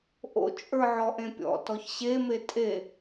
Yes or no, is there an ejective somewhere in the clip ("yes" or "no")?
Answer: yes